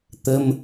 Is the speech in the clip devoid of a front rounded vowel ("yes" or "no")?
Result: yes